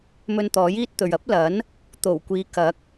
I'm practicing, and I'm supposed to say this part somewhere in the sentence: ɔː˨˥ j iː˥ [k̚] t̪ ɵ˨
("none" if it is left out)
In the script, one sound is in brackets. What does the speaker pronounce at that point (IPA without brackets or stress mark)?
t̚